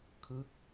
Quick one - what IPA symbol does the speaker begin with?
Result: kʰ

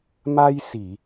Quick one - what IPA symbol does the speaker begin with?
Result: m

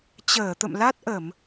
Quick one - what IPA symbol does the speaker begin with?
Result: t͡ɕ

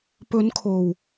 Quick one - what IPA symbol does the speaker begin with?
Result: p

